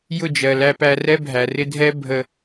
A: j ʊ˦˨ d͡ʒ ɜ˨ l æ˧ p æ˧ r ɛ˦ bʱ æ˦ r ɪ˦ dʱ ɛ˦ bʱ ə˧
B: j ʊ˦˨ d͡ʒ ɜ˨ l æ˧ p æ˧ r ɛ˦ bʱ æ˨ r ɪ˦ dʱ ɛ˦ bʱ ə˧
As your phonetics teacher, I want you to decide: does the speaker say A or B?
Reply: B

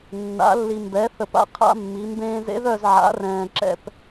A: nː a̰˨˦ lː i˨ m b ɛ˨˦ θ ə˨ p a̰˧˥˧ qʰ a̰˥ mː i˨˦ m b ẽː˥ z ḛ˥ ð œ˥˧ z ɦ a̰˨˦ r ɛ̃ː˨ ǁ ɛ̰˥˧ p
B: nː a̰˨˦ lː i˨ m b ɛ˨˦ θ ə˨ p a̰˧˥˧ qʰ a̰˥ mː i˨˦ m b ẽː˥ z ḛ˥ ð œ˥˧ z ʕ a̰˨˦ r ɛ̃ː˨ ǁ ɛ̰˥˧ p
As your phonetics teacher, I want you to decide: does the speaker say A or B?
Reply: B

